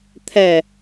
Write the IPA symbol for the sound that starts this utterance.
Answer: t̪ʰ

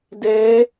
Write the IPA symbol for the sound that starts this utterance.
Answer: d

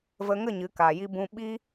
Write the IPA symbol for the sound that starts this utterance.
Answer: v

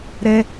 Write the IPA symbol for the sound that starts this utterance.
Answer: ɾ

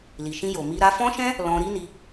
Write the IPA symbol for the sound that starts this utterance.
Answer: l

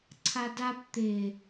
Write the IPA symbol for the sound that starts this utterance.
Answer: ǀʰ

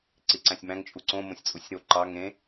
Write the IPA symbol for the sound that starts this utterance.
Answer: ǀ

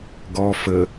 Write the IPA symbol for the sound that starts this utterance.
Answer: ɡ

